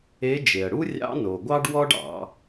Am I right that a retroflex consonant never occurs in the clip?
no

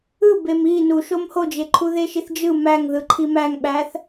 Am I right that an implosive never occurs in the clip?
no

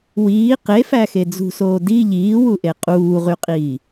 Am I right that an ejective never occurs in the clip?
no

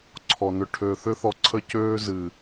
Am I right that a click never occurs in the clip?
no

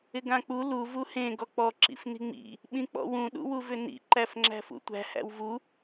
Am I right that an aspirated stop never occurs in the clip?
yes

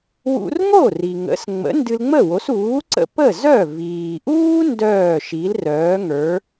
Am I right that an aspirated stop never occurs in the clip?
yes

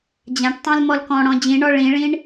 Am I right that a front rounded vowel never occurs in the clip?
yes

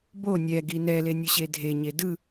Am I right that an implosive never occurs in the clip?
yes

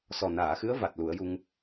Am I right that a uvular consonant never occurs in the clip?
yes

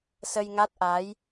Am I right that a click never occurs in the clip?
yes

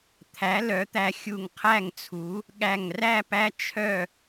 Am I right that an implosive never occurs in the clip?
no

